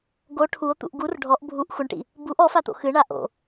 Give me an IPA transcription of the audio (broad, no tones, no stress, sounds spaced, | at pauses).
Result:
ɡ o ʈʰ u o̯ t̪ ṵ ʔ ɡ u r ɖʱ ɔ ʔ bʱ u ʔ xʷ ɘ ɳ ʈ ḭ | b u ʔ ɔ f a t̪ o̰ x ɨ ɳ a ʔ o̰